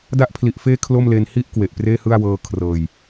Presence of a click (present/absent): absent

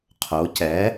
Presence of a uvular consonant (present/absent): present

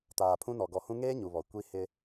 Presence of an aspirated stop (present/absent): present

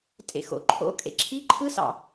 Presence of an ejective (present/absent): present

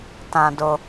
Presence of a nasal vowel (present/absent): present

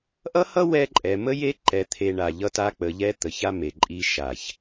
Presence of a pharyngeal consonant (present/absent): absent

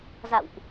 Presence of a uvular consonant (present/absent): absent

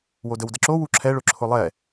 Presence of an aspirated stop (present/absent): present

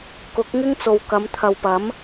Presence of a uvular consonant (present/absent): absent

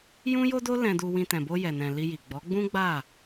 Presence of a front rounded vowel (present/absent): absent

